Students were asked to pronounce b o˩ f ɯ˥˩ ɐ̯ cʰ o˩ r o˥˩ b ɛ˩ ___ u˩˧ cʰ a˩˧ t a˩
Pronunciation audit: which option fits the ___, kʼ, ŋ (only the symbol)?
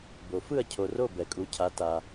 kʼ